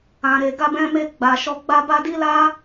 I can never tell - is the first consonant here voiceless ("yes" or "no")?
no